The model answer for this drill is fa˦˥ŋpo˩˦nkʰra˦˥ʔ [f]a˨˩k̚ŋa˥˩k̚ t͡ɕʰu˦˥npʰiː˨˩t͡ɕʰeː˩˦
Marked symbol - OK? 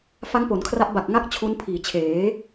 no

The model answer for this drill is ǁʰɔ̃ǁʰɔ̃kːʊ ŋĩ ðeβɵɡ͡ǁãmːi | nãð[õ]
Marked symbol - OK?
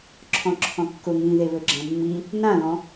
no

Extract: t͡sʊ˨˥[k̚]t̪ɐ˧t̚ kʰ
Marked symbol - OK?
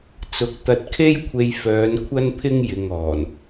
yes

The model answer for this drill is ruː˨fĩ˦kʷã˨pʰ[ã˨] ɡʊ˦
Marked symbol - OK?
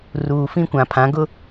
no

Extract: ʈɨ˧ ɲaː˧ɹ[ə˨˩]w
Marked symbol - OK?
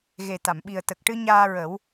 no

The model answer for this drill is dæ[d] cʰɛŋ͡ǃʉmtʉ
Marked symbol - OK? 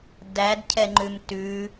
yes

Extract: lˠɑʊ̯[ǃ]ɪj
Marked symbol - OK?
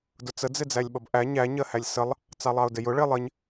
no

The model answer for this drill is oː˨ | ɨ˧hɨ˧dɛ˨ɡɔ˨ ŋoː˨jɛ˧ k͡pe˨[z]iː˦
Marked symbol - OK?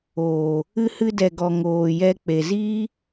yes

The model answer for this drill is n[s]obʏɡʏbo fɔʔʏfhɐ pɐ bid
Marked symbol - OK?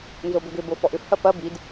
no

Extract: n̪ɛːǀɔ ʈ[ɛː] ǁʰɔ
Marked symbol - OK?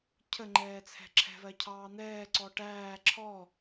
no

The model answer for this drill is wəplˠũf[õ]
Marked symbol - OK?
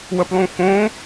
yes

